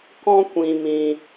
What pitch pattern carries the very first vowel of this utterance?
high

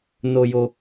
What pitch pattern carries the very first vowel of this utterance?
high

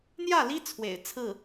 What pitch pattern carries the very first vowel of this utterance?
falling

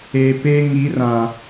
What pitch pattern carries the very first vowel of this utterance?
low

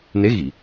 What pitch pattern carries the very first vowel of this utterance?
rising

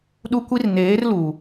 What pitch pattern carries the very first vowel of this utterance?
high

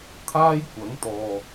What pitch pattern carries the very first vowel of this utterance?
high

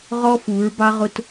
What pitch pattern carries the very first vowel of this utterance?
high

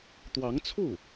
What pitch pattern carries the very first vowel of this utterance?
rising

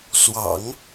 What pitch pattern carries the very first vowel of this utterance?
low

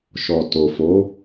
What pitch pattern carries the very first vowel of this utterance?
low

